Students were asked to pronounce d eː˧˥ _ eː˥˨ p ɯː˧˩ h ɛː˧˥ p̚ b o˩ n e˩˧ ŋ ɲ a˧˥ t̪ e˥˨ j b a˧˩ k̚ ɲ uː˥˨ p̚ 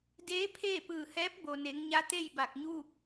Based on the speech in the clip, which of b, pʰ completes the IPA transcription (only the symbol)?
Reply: pʰ